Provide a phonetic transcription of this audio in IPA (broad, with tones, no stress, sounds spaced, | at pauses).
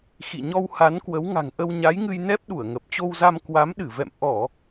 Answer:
x ḭ˧˨ ɲ ɔ˧ w h a˨˦ n k w ə˨˦ w ŋ a̤˨˩ ŋ ʔ ə˧ w ɲ a˨˦ j ŋ ɨ˧ j n ɛ˦˥ p̚ ɗ u˧˩ ə̯ ŋ ə˨˩ p̚ t͡ɕ o˧ w z a˧ m k w a˨˦ m ɗ ɨ˧˩ v ɛ̰˧˨ m ʔ ɔ˧˩˨